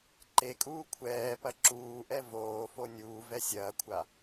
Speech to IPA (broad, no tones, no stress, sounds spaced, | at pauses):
ǃ e kʼ uː kʷʰ ɛː p ɐ ǁ uː ʔ ɛ v oː f o nʲ uː v ɛ sʲ ɐː kʷʰ a